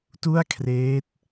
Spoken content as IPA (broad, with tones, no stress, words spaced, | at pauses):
tu˥˩a̯kʰreː˦˥t̚